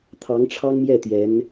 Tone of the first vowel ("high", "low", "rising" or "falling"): rising